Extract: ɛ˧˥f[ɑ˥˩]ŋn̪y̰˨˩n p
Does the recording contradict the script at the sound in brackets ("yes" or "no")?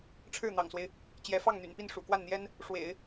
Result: no